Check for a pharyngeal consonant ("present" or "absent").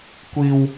absent